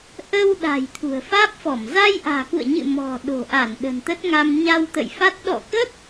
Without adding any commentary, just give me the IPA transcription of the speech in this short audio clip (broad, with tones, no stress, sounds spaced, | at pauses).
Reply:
ʔ ə˧ w ɗ a̤˨˩ j t̪ʰ ṳ˨˩ ə̯ f aː˦˥ p̚ f ɔ˧˩ m z a˧ j ʔ a̤ː˨˩ k ṵ˧˨ ə̯ ɲ ɨ̰˧˨ m ɔ̤˨˩ ɗ o̤˨˩ ʔ a˧˩ n ɗ ə̤˨˩ n t̪ ə˦˥ t̚ ŋ a˧ m ɲ a˧ w t̪ ə̰˧˨ j f a˦˥ t̚ ɗ ɔ̰˧˨ k ə˦˥ t̚